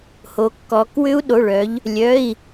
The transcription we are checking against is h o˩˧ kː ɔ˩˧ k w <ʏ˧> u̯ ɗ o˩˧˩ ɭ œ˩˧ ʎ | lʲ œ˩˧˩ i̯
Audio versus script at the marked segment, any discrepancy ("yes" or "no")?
no